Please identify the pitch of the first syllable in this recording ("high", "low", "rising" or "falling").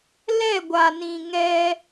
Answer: falling